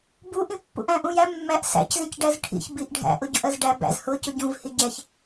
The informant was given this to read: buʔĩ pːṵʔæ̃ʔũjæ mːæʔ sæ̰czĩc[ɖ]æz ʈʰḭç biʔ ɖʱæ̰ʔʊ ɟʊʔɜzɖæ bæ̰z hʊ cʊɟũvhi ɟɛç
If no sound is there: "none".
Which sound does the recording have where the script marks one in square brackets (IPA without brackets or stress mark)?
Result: ɖ